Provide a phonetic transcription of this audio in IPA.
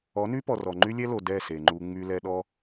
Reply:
ɔ˨˦ n y˦ p ɔ˨ r ɔ˨ ŋ͡ǃ y˦ lʲ ɛ˦ l o˨ d ɛ˦˨ s e˨ ŋ͡ǃ u˧ ŋ͡m y˧ l ɛ˧ ɗ ɔ˦

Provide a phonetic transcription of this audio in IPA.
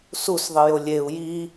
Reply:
s u s ðˤ i j o lʲ e u̯ j i

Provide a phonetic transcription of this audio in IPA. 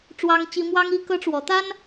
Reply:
ʈ͡ʂ w ɑ˦ ŋ t͡ɕ i˦ m w ɑ˦ ŋ i˦ k ɤ˦ ʈ͡ʂ w ɔ˨˦ t̪ a˦ n

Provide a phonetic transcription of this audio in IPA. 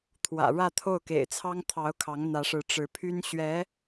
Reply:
t̪ʰ w ä̰˨˩ ɻ ä˥˧ t̪ʰ o˥˩ ʊ̯ k ḛ˨˩ ɪ̯ t͡sʰ ɑ˥ ŋ t̪ʰ ɑ˧˥ ʊ̯ kʰ ɑ˧˥ ŋ n̪ ä˧˥ ʂ ɻ̩˧˥ ʈ͡ʂ ɻ̩˧˥ pʰ y˥ n ɕ ɥ ɛ˧˥

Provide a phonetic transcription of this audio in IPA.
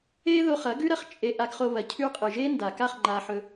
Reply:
e˦ ð o˧ χ ɐ˨˦ ɡ ʉ˦ ɾ ɐ˧ χ t͡ʃʼ e˧ ʔ a˧ ɡ χ o˧ β ɐ˨ cʰ ʉ˧ qʼ ɨ˨ ʒ e˦ n d a˨ k a˦˨ χ ŋ͡ǃ a˧ ħ ɵ˧

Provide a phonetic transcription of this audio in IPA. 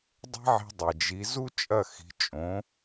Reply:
dˤ e̤˥ ʕ i̤˧ dˤ e˩ d͡ʒ i˩˥ z u˥ t͡ʃʼ ɐ˥˩ x i̤˩˥ t͡ʃʼ õ˩˥

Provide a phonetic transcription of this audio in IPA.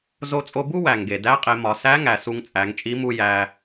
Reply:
z o˧ t͡sʼ o˧ b u˥ w æ˩ ŋ ɡ e˩ d æ˧˥ qʼ e˩˧ m ɒ˩˧ s æ˧˥ ŋ æ˩ s u˧ ŋ t͡sʼ æ˩˧ ŋ t͡ʃʼ i˧˥ m u˧ j æ˧

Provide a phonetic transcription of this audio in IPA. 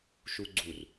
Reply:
ʃ u ɡ͡ǀ u r

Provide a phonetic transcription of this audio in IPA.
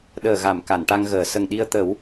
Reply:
ɗ əː˨˩ ɣ a˨˩˨ m k a˨˩˨ n ʈ a˧ ŋ ɣ əː˨˩˨ s ə˨˩ ŋ ɗ i˧ ə̯ t̪ ə˨˩˦ w

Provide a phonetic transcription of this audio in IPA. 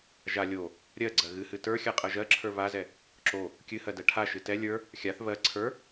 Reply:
ʒ a lʲ o | ɾʲ ɜ ɡ͡ǀ ɜ ɣ ɨ h ɨ t ə˞ xʲ a qʼ ɜ ʒ ɜ ǁʰ ə˞ β a z ɛ | ǁ o | kʲ ɨ h ɜ d ɛ ʈʰ a ʃ ɨ t ɛ lʲ ə˞ | xʲ a θ β ɜ ǀʰ ə˞

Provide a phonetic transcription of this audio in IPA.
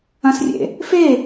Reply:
ɐ̃ s rʲ ḛ | f e

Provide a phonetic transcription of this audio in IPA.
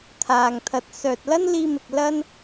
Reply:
t̪ʰ aː˨ ŋ t̪ʰ ɐ˨˥ t̚ s œː˨ t̚ l ɐ˥ n l iː˧ m ɪ˨ k̚ l ɐ˥ n

